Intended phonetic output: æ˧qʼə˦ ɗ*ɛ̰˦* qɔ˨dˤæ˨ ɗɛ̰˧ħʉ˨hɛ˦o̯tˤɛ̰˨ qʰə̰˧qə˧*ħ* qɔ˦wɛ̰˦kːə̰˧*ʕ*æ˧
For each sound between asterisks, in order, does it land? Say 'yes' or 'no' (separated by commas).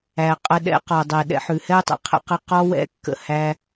yes, no, no